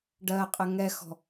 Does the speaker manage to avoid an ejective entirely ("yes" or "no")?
no